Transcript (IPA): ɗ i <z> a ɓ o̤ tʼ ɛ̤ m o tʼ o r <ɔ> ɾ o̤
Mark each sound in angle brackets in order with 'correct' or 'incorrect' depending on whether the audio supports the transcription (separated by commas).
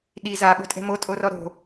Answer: correct, correct